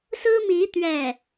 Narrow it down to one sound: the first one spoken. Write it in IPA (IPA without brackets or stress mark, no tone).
s